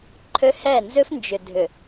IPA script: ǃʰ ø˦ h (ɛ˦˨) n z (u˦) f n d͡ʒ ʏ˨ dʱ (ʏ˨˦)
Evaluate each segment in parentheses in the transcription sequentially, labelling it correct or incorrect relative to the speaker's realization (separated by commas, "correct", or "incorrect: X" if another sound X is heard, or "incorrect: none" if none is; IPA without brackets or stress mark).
correct, incorrect: ʏ˦, incorrect: ʏ˨